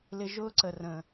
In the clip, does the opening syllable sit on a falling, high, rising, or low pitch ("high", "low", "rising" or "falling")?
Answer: high